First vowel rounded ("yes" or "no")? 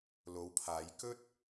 yes